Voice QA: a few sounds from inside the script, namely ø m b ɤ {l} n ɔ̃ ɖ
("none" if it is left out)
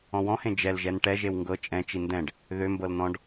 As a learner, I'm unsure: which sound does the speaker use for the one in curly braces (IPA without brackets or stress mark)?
l